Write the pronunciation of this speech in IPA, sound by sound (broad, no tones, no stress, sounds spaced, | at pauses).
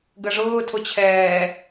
ɡ ə ʐ ʊː tʰ ʊ t͡ɕʰ ɛː